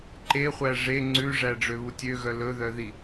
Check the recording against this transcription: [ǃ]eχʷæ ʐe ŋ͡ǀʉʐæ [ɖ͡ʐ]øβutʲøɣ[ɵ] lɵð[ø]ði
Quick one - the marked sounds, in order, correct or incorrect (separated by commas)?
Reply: correct, correct, incorrect, incorrect